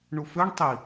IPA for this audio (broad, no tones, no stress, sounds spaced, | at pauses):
ɳ u f ø ɳ tˤ i